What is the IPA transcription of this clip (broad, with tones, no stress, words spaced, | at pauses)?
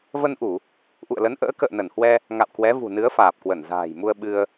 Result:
və˧nʔu˧˩˨ | ʔṵ˧˨ə̯lə˨˦n ʔə̰ː˧˥kə̰ː˧˨nə˧˩nhwɛ˧ | ŋa̰˧˨wkwɛ˨˦vṳ˨˩nɨ˨˦ə̯ faː˨˩p̚kwə˧˩nza̤ː˨˩jmu˧ə̯ ɓɨ˧ə̯